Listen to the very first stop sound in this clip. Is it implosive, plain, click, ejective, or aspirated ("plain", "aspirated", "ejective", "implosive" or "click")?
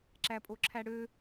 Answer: click